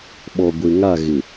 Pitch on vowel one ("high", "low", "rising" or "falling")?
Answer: low